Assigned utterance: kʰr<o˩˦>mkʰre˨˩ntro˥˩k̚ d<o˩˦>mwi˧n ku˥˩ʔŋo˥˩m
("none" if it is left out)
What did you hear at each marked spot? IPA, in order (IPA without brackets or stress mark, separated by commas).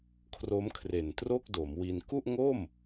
o˦˥, o˩˦